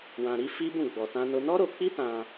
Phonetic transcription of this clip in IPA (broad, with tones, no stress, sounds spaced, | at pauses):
w ã˧ ɾ i˦ f i˦ b ũ˦˨ ɡ͡b ɔ˧ t ã˦ n o˦ n ɔ˦ ɾ o˧ k͡p i˦ t ã˧